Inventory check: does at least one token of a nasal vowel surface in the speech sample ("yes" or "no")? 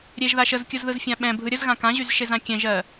yes